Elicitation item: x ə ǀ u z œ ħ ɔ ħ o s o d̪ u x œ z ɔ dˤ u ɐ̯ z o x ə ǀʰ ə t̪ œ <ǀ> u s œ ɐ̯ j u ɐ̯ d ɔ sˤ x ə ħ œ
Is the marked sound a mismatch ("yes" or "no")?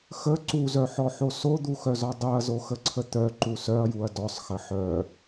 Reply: yes